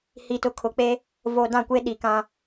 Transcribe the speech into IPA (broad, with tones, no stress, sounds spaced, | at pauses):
h i˨ t ʊ˨ kʰ ʊ˨ k͡p e˦ | v o˨ d ã˦˨ kʷ e˦ ɗ i˨ k ã˦